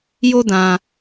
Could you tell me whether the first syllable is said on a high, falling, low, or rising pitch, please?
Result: high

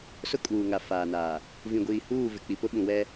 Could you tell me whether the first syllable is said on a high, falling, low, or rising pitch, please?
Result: high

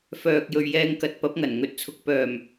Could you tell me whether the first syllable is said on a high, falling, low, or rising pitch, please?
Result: low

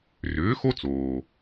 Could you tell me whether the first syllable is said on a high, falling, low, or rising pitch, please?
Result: rising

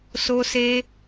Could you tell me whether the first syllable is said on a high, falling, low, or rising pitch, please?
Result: high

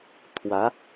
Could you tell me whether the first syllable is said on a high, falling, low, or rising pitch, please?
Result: rising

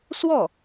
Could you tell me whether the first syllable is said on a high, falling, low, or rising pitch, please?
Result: falling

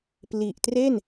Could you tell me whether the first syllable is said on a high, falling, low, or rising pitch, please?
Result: low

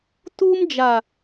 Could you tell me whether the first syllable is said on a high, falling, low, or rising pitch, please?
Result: high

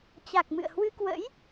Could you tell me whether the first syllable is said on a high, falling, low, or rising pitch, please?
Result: low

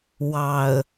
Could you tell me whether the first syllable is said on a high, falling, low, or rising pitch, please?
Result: low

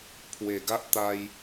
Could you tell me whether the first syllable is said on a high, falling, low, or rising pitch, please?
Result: low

